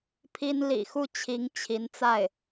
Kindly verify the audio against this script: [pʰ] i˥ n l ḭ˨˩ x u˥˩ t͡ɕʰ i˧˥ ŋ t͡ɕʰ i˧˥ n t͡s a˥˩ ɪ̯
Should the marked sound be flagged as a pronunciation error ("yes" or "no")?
no